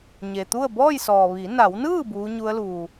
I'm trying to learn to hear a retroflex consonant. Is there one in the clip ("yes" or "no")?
no